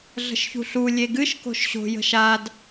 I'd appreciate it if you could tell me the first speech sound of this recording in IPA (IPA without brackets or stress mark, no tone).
ɮ